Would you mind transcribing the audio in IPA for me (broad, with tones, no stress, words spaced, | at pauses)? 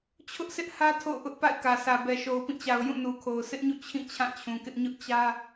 t͡ɕʰʊ˦ʔsʰɪ˦ʔhä˦ tʰo̰˦˨ʊ̯ʔʊ˦ʔ pa̰˦˨ɪ̯kä˨sʰä˨bɛ˨ ʃo˨ʊ̯pĩ˦˨t͡ɕa˨ʊ̯ jũ˦˨nu˨kʰo˨ʊ̯ sʰɪ˦ʔɲṵ˦˨ t͡ɕʰĩ˦˨ t͡ɕʰã˦˨t͡ɕʰũ˨kɪ˦ʔ ɲʊ˦ʔt͡ɕä˦